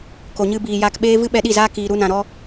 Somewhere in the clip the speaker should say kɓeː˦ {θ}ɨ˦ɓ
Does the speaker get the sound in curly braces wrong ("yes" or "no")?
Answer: yes